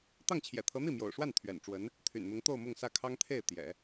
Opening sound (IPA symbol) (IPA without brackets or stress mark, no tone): t̪